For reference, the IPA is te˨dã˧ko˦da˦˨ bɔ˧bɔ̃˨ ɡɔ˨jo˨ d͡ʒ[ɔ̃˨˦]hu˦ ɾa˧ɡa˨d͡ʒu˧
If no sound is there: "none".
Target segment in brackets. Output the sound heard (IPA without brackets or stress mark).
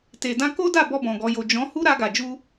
ɔ̃˨˦